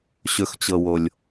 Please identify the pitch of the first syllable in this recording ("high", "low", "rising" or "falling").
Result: low